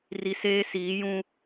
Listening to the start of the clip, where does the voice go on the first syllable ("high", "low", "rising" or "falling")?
low